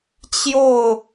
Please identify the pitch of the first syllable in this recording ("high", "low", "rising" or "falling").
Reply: falling